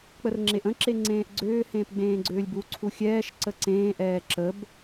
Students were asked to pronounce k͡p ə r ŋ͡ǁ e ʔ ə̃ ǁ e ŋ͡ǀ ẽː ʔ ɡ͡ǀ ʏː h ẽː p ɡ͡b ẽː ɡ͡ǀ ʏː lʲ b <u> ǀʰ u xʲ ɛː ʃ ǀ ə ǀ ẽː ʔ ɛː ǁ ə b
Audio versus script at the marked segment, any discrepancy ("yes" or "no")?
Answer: no